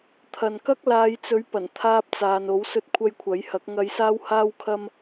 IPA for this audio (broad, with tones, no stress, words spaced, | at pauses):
t̪ʰɐ˨nkɐ˥k̚ laː˨˧jt͡sɵ˨˥ɥ pɐ˨˩nt̪ʰaː˧p̚t͡saː˨n o˨˥wsɵ˧t̚ kʷʰɐ˧jkʷʰɐ˨˥jhɐ˨˥k̚ ŋɐ˨˧jsaː˧w haː˥wkʰɐ˥m